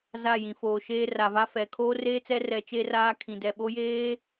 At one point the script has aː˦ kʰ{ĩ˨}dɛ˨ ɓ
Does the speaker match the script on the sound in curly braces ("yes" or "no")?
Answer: yes